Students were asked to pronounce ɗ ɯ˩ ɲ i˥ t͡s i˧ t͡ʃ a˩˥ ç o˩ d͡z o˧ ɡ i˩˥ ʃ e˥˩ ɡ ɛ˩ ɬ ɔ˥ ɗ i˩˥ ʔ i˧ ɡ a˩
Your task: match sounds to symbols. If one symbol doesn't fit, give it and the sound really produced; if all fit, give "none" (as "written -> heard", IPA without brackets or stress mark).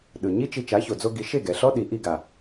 t͡s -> t͡ʃ